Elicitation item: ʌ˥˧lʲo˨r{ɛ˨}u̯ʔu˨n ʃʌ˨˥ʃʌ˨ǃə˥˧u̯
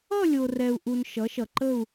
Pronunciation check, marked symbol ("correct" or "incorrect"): correct